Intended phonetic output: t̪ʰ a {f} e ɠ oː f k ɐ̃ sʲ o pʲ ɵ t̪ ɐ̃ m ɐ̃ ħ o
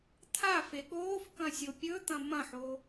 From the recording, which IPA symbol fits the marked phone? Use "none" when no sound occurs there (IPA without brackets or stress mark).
f